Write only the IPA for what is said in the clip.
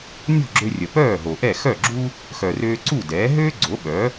nʲ o̤˥˩ ɡ͡ǁ ø˧ rʲ ə˩ p œː˥˩ ɦ o˩ ʔ ɛ˥˩ x œ˥˩ ɡ͡ǁ u˥ | x œ˩ r øː˧ ǀ u˥˩ d ɛː˩˥ ɦ øː˥ ɡ͡ǀ o˩˥ ɓ œ˩˥

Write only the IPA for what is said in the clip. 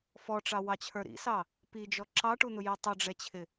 f ɔ ʈ͡ʂ ɑ w ɑ t͡ɕʰ ə˞ ɾ ḭ s ɑ | p i d͡ʒ ɔ ǁ ɑ ʈ u n̪ ʊ j i tˤ ʊ ɖ͡ʐ ɛ t͡ɕʰ ɪ

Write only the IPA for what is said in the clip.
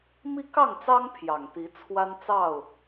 m i˦ k ɑ˥˨ ŋ t͡s ɑ˦ ŋ pʰ j ɑ˨˩ ŋ t̪ i˨˦ t͡sʰ w a˦ n t͡s ɑ˥˨ ʊ̯

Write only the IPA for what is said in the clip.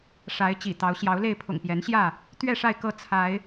ʂ a˨˦ ɪ̯ t͡ɕ ḭ˨˩ t̪ ɑ˨˦ ʊ̯ ɕ j ɑ˨˦ ʊ̯ l e˥˨ ɪ̯ pʰ ʊ̰˨˩ ŋ p j ɛ˨˦ n ɕ j ä˥˨ | t̪ ɥ ɛ˥˨ ʂ a˥˨ ɪ̯ k ɤ˥˨ t͡sʰ a˨˦ ɪ̯

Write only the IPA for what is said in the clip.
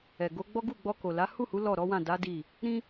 ɛ˨ ɡ o˨˦ ɡ͡b ɔ˦ ɡ u˦˨ ɡ͡b ɔ˧ k o˨ l a˨˦ h u˦˨ h u˨˦ l ɔ˦˨ ɾ ɔ˨˦ w ã˦˨ d a˨˦ d i˦˨ | ɾ ĩ˦

